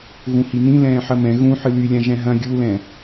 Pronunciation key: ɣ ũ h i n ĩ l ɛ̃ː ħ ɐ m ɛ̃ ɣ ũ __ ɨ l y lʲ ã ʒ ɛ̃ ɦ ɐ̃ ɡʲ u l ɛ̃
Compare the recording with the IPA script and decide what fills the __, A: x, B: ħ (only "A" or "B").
B